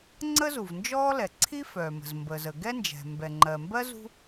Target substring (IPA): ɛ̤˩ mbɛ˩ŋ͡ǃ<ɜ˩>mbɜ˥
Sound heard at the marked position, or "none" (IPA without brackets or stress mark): ɜ˩